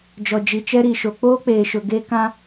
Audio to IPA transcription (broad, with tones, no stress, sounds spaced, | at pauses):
d͡ʒ ɔ˨ d͡ʒ i˨ t͡ʃ ɛ˦ ɾ i˨ ʃ o˨ k͡p oː˦ k͡p eː˨ ʃ ʊ˨ ɡ e˦ k ã˦